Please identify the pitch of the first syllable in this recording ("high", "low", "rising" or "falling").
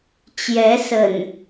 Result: rising